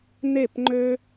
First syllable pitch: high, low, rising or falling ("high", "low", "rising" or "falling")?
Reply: falling